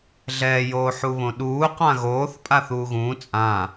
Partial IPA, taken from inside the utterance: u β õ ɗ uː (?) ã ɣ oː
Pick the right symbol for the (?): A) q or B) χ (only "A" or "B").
A